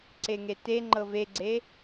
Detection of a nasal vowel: absent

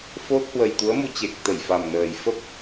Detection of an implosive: absent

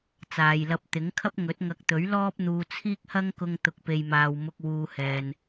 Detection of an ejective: absent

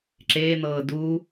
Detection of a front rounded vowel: absent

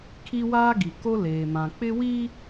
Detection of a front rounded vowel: absent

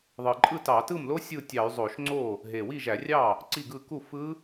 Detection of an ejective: present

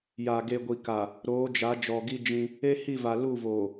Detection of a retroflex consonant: absent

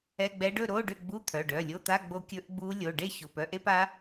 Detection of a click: absent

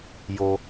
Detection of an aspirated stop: absent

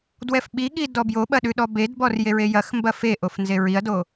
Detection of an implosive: present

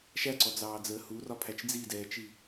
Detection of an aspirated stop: present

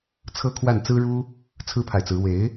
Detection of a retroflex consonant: present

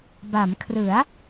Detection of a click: absent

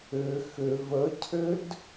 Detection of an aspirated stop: present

